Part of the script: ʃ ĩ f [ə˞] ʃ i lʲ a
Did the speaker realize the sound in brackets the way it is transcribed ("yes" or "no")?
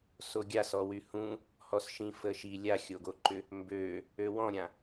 no